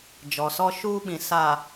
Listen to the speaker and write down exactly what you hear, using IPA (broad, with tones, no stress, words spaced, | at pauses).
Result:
d͡ʒɔ˨ sɔ˦ʃuː˦ɓĩ˨ sa˨